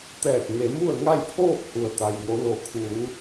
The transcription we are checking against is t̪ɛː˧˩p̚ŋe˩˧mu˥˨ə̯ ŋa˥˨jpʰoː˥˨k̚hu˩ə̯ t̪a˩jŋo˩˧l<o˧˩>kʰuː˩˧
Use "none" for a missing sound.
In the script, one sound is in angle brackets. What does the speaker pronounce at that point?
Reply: o˩˧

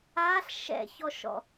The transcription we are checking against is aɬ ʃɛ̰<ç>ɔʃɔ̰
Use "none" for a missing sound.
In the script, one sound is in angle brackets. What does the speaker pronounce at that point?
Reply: ç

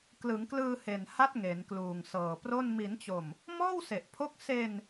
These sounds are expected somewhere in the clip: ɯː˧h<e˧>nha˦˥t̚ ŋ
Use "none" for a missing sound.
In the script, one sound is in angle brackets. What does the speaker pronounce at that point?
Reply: e˨˩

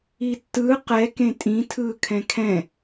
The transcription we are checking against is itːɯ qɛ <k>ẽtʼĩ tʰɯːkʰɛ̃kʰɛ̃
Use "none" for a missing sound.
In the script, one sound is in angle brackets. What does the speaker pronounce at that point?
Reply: k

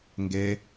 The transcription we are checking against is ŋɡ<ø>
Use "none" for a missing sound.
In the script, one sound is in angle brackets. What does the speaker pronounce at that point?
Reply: e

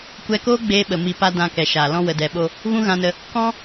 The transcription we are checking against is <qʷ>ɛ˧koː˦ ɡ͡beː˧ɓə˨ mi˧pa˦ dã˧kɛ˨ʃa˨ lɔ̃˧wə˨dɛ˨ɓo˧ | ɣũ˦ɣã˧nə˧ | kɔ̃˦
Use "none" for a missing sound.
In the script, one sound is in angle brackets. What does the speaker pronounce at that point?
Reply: kʷ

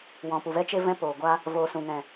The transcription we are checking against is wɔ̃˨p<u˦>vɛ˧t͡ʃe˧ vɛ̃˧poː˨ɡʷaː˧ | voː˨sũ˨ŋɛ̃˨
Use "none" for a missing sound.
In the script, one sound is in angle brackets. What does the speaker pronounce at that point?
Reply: u˨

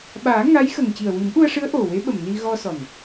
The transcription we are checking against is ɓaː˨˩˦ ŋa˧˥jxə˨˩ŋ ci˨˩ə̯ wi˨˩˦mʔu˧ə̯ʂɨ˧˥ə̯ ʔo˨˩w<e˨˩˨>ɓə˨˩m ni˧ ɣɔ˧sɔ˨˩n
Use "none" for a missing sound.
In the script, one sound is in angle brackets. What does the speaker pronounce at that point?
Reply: e˧˥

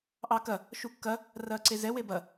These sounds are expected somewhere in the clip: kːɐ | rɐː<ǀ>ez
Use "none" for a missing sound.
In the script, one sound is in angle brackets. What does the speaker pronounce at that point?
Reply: ǀ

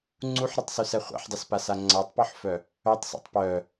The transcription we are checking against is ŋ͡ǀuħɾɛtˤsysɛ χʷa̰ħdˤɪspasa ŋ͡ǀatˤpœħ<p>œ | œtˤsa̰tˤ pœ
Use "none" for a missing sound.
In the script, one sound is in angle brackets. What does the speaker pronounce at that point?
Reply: f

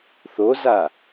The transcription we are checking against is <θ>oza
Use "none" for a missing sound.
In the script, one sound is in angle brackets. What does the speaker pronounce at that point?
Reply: θ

